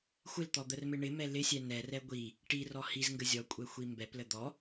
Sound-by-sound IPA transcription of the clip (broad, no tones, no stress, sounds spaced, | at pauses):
xʷ ɪ l t̪ ɔ d̪ ə r m ɪ ɳ ɪ m ɛ l ɪ sʲ ɛ n ɛ r ɛ ɡʷ i | ʈ i r ɔ h i z ŋ ɡ ə zʲ ɔ kʷʼ ɛ xʷ i m b ɛ p l ə d̪ ɔ